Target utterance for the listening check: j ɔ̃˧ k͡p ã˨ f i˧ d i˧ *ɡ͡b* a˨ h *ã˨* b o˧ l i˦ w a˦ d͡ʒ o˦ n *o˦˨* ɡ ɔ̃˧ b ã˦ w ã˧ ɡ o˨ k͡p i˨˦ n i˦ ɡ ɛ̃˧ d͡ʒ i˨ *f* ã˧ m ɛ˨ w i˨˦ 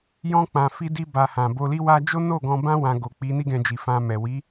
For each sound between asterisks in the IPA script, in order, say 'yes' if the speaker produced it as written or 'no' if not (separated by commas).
no, yes, yes, yes